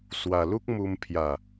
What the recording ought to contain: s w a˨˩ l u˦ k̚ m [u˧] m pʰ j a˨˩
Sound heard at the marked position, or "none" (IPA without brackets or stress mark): u˧